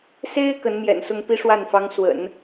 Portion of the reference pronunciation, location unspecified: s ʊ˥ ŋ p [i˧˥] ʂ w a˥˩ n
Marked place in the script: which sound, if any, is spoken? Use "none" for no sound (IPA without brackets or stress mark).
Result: i˥